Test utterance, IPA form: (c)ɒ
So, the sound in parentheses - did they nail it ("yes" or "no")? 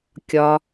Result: no